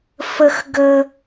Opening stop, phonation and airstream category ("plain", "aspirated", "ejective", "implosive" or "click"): plain